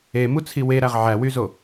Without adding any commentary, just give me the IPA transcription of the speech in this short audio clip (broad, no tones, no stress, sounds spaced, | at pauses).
e m u t͡sʰ i w e ɾ æ ʁ ʕ æ w y z o